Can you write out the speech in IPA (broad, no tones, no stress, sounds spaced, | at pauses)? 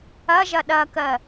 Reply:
ɐ ʒ ɐ ɗ ɐ k ɜ